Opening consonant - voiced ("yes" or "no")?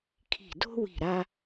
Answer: no